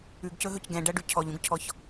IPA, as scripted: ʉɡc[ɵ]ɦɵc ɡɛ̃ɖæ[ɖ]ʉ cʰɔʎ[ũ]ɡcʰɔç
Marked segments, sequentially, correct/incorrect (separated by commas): correct, correct, correct